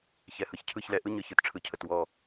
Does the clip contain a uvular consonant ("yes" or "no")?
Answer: no